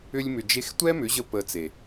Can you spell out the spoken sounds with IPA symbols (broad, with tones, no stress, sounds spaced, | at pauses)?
ʏ˧ lʲ m ʏ˨ d͡ʒ e˧ x tʷ ɛ˦ m ʏ˨˦ ʑ ə˧ p ə˧ t͡s e˨